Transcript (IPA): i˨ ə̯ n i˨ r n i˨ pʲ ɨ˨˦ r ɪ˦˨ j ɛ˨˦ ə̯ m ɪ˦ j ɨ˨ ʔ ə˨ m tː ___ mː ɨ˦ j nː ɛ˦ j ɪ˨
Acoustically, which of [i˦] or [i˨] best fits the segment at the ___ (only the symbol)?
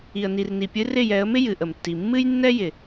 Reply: i˨